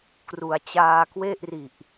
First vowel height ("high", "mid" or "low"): high